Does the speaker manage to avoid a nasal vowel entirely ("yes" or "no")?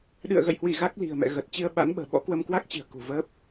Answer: yes